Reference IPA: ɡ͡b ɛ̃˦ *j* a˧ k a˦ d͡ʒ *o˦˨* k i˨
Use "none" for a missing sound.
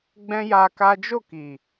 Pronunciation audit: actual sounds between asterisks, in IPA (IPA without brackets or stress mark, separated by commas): j, o˦˨